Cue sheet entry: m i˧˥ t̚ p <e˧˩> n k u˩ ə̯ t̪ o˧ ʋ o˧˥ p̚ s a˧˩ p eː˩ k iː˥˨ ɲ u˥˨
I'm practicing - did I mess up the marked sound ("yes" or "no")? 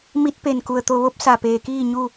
no